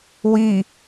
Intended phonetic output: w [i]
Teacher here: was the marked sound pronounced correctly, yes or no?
yes